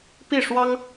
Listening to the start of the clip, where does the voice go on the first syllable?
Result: falling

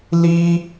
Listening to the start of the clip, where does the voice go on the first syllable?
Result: high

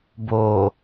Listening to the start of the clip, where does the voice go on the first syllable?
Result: low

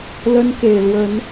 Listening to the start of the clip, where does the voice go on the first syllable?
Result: high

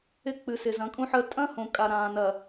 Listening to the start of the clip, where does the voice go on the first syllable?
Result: falling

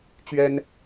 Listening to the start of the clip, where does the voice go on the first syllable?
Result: high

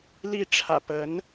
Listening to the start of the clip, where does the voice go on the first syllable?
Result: falling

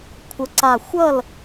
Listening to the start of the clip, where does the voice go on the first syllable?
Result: rising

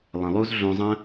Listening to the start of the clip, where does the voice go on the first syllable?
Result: low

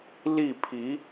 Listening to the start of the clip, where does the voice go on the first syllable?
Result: falling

